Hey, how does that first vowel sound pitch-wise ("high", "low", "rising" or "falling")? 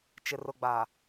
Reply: low